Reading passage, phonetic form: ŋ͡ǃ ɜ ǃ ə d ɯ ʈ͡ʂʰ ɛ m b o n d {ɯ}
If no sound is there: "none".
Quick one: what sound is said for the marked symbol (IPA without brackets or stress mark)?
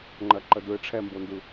ɯ